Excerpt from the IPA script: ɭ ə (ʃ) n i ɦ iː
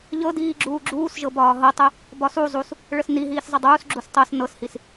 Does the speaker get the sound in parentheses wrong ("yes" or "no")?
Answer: yes